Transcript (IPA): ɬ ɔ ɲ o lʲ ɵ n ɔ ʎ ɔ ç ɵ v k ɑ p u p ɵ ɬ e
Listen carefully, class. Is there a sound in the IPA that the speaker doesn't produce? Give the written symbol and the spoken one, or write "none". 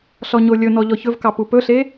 none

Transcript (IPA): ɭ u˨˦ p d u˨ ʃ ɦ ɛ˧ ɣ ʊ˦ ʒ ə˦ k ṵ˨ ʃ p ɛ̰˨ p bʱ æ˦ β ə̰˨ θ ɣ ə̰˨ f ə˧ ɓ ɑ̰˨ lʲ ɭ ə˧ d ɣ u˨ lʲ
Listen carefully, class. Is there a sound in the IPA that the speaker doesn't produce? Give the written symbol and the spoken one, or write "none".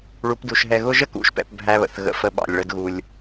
none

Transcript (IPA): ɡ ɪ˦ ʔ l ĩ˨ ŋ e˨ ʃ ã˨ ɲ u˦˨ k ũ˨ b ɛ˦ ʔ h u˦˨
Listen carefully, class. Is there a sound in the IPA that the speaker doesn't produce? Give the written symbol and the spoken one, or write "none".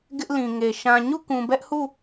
none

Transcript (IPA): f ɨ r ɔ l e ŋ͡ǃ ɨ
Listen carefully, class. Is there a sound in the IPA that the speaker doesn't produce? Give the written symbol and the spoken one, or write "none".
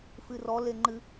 none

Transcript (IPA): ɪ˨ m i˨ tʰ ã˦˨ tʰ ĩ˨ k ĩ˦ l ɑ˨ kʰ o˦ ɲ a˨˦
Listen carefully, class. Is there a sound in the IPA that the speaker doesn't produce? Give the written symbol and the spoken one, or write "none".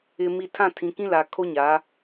ɑ˨ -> a˨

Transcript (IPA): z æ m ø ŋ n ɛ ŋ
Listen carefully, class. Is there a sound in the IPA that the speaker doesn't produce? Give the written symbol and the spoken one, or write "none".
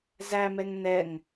ø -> ɛ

